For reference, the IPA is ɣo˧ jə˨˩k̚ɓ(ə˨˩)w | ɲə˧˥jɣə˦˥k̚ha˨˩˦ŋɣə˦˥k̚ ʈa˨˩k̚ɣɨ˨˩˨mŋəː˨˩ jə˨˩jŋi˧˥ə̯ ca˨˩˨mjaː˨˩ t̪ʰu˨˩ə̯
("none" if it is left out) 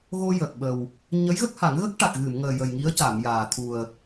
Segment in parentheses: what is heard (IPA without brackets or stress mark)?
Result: ə˨˩